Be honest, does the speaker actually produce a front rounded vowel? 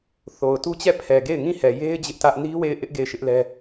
no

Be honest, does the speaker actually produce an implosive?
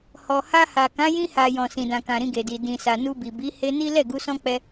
no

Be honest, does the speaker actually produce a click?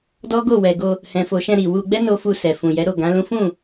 no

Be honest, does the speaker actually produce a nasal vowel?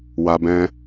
yes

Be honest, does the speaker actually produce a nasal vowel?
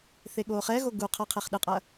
no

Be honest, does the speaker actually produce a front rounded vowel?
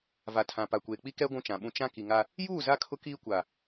no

